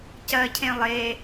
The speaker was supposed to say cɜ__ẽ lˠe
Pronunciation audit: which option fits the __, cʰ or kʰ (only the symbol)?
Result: cʰ